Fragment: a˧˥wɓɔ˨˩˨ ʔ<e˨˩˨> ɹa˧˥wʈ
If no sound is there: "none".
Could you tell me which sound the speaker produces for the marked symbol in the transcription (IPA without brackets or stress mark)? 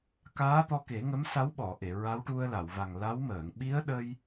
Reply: e˨˩˨